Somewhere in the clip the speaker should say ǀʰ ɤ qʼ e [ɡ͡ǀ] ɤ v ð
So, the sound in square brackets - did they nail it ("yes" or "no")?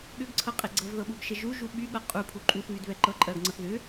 yes